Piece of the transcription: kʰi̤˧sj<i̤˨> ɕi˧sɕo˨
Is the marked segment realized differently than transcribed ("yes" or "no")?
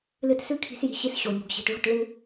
no